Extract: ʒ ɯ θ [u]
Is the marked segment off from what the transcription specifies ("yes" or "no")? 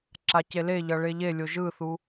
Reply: no